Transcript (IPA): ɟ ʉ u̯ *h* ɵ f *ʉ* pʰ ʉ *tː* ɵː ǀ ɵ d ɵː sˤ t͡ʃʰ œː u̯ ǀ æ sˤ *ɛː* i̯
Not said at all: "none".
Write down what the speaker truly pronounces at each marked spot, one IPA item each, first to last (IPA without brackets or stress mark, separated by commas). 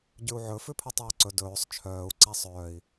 ʕ, ʉ, tˤ, œː